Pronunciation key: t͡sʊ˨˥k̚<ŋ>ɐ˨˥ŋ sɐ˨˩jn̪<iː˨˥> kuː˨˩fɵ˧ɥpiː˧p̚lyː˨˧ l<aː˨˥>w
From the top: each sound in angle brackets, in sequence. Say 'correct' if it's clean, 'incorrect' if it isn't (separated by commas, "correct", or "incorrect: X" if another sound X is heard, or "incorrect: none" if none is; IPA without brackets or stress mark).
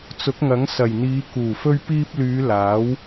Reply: correct, incorrect: iː˨˧, correct